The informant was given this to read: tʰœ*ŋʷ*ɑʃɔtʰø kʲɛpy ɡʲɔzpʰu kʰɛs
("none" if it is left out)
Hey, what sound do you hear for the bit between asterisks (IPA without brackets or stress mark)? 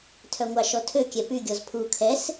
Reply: ŋʷ